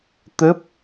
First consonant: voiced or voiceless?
voiceless